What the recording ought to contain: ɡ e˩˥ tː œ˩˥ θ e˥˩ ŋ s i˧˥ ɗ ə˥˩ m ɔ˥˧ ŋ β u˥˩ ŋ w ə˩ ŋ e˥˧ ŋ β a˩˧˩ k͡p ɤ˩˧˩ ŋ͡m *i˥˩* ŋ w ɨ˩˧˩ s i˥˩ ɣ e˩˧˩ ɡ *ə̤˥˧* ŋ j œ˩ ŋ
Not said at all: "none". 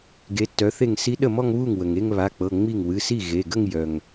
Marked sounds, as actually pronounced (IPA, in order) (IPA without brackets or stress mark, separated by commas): i˥˩, ə˥˧